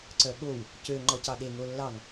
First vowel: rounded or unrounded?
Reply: rounded